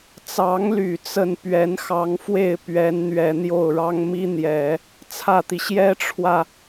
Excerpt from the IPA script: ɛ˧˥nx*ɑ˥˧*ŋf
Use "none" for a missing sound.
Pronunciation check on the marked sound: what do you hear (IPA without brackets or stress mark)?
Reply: ɑ˧˥